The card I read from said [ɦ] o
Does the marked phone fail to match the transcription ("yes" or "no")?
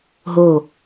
no